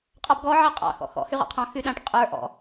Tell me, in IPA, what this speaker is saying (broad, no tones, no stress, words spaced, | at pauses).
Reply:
qʼɑbɡɔ ʕaqʼɑ̰ xɔ̰xɔ̰ hyʁɑ̰qʰɑ̃ xyɗãʈ qʼə˞ ʔɔ̰